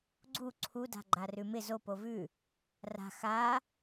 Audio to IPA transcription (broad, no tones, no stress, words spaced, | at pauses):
ɡ͡ǀu ǀʰuda̤ɡ͡ǃa rʉmɪ zo povʉ | ra̤ xa